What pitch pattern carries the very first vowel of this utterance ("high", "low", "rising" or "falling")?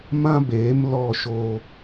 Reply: high